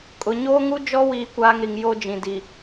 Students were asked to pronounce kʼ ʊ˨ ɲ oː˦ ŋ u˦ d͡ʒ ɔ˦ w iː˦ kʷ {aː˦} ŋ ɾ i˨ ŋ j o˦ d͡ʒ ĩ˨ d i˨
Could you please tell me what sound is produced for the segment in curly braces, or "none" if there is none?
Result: aː˦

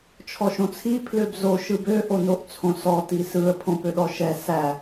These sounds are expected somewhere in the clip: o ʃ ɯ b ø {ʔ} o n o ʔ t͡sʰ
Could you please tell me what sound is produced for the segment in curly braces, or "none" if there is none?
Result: ʔ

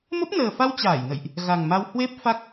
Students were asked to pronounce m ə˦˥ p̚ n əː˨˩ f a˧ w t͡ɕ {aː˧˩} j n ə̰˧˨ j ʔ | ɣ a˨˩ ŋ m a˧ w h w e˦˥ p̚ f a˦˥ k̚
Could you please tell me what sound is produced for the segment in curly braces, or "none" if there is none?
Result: aː˧˩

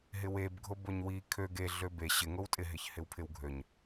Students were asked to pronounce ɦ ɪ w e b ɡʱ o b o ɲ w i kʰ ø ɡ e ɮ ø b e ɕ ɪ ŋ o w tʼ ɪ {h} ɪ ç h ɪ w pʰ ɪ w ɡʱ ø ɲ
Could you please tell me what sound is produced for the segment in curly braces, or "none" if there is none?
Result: ɦ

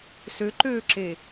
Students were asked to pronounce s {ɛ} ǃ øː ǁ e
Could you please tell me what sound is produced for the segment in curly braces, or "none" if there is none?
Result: ø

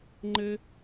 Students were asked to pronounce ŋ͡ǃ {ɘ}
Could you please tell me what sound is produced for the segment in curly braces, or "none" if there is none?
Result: ɘ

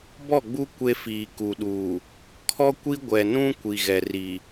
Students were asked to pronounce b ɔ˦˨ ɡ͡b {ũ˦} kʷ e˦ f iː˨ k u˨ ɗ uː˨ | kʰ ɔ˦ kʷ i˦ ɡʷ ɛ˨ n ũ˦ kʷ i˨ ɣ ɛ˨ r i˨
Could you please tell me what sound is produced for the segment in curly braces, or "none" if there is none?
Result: u˦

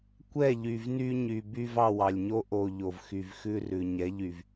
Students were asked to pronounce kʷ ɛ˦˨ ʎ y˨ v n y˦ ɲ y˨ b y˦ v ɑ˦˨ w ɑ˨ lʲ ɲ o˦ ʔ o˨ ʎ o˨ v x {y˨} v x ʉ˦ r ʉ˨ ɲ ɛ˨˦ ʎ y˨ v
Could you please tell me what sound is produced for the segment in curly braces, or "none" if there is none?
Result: y˨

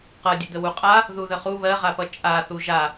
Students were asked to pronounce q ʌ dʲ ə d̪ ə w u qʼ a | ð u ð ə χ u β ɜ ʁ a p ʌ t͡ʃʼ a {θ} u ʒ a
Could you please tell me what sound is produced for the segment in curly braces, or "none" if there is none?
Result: θ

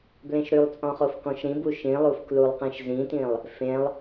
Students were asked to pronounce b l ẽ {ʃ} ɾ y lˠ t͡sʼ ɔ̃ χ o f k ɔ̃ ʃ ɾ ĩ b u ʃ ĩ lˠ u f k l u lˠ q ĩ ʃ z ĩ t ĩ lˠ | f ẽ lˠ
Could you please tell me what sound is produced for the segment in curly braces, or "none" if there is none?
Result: ʃ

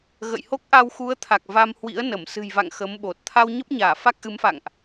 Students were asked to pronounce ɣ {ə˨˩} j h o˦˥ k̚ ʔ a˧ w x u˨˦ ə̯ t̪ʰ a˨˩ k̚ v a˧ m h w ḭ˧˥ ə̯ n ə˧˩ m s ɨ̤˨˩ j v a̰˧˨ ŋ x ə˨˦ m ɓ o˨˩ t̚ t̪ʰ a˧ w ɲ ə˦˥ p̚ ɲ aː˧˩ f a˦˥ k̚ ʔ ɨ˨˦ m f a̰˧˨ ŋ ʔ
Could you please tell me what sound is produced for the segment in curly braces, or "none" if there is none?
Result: ə̰˧˨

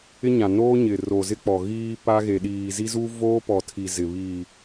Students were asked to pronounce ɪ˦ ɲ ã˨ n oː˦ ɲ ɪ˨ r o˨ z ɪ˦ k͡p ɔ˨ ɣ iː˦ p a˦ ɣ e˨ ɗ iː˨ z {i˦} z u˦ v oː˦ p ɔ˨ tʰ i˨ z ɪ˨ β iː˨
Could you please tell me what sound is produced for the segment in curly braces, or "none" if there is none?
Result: i˦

